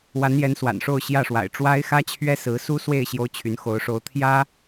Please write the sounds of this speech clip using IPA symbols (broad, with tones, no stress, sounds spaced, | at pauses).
w a˧˥ n j ɛ˧˥ n s w a̰˨˩ n ʂ o˥˧ ʊ̯ ɕ j ä˥˩ ʂ w a̰˨˩ ɪ̯ ʈ͡ʂ w a˥ ɪ̯ x ä˥ t͡ɕʰ ɥ ɛ˥ s ɹ̩˧˥ s u˥ s w e˥˩ ɪ̯ ɕ j o˥ ʊ̯ t͡ɕʰ y˧˥ n x o˧˥ ʊ̯ ʂ o˧˥ ʊ̯ t̪ʰ j ä˥